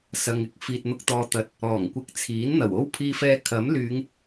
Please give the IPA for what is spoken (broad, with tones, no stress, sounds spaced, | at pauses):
s ɐ˧ ŋ ɪ˥ k̚ f iː˨ t̚ n̪ ʊ˧ k̚ t̪ ɔː˨ t̪ ɐ˨˥ t̚ | ɔː˨˩ ŋ kʷ ɪ˧ k̚ t͡sʰ iː˨˥ n n̪ ɐ˨˩ w o˥ w pʰ iː˧ f ɛː˧ kʰ ɐ˨˥ m l yː˨˧ ŋ